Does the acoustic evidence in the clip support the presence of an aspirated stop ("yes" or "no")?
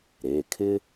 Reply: yes